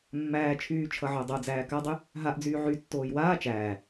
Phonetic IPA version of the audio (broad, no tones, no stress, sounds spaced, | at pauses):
mː æː t͡ʃʰ yː t͡ʃʰ ʌ ʕ o dˤ o d͡z æː k a dˤ y | ɦ a ʔ d͡z yː ʕ y tː oː j w aː t͡ʃ æː